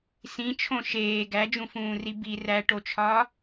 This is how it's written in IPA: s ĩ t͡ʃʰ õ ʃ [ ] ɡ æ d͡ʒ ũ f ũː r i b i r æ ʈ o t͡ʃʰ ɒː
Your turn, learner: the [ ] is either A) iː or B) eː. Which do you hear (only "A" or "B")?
B